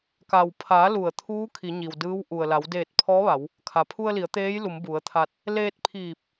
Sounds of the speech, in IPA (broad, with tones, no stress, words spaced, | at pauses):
ka˩wpʰa˩˧ lu˧˩ə̯ t̪ʰuː˧˥ kʰi˩˧ɲi˩wdɯː˧˥w ʔu˩ə̯la˩˧w deː˧˩t̚pʰɔː˧˥ʋa˩˧w | kʰa˩pʰu˧ə̯li˩˧ə̯ t̪eː˧˥jlu˩˧m bu˩˧ə̯t̪ʰa˧t̚ | leː˧t̚pʰiː˧˩p̚